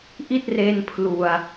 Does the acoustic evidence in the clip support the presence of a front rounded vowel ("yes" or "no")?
no